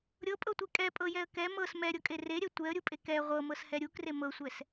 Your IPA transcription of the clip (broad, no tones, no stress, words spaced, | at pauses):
ɾʲɤpʼɤtʷe kʼɛpʼɤjɛə̯ kɛ mɤs mɛɾʲɤkʼe reɾʲɛ tʷɛə̯ɾʲupʼe kɛ ʁʷɤmɤshɛ ɾʲukre mɤsʷɛs